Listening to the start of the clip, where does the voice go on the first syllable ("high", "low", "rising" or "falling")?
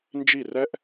falling